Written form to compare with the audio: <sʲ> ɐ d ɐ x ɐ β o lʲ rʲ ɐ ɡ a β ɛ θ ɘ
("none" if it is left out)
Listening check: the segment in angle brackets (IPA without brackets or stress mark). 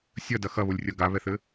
sʲ